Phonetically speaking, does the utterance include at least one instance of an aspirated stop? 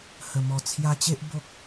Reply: yes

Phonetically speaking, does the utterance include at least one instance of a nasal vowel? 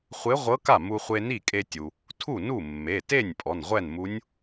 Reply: no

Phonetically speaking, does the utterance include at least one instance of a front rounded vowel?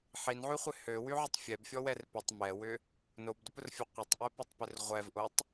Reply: yes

